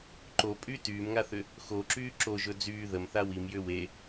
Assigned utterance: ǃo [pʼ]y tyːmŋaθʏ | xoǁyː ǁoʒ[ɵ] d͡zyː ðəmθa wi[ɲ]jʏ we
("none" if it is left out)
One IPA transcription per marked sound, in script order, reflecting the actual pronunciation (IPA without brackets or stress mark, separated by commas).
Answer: pʼ, ɵ, m